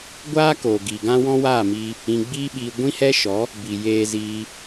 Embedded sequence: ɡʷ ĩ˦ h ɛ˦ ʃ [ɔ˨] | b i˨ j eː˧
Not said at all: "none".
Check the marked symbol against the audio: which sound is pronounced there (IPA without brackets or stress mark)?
ɔ˨˦